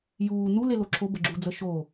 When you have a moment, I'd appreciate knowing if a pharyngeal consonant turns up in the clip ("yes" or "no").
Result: no